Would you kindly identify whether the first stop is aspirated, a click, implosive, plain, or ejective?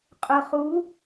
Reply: ejective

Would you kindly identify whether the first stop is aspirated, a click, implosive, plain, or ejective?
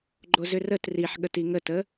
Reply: click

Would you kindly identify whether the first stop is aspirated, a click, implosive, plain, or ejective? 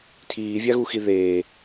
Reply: aspirated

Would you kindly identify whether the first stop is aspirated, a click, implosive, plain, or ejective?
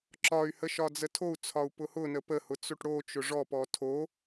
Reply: click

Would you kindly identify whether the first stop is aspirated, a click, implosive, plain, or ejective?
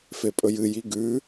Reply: ejective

